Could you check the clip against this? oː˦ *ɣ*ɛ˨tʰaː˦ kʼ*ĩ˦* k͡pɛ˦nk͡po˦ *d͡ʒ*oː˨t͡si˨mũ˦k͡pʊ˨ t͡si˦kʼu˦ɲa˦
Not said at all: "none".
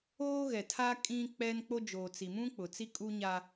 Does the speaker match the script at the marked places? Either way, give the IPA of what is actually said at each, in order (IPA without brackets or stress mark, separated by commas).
ɣ, ĩ˦, d͡ʒ